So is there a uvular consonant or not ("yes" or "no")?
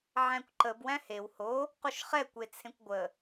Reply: yes